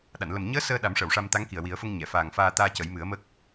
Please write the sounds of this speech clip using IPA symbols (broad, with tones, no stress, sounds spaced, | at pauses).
ɗ a˨˩˨ n l ə˨˩ m ɲ əː˧˥ s əː˧ ɗ a˨˩˦ m ʂ ə˨˩˨ w ʂ a˧ m t̪ a˧˥ ŋ k i˨˩ ə̯ w i˨˩˦ ə̯ f ə˧ ŋ ɲ ɛ˨˩˨ f aː˨˩ ŋ f aː˧ t̪ aː˧ c ə˨˩˦ j m ɨ˨˩˦ ə̯ m ə˦˥ k̚